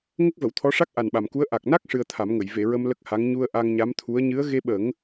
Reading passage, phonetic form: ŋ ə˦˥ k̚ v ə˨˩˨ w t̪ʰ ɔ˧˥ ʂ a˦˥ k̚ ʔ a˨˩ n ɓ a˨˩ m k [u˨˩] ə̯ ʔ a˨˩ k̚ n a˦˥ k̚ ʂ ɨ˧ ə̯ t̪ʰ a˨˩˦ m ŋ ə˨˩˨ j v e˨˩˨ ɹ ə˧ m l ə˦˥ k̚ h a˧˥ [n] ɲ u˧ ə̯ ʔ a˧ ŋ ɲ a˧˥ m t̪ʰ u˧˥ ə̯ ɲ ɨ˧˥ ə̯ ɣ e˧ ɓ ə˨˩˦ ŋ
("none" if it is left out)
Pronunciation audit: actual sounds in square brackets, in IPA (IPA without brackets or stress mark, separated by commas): u˧˥, ŋ